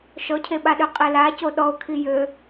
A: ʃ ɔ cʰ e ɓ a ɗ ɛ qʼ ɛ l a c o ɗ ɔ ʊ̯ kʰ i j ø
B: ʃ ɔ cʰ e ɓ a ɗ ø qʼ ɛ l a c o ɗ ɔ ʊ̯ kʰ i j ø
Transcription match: B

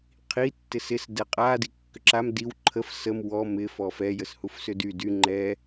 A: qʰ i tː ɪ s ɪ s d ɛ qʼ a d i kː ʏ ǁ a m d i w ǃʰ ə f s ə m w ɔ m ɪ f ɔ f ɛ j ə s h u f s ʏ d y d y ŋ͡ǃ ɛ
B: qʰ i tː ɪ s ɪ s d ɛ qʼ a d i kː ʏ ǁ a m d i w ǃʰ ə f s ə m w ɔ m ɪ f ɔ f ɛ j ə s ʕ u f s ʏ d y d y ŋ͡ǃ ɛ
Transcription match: A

